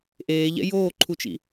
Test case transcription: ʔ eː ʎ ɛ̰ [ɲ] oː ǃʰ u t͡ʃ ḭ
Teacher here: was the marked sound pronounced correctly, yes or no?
no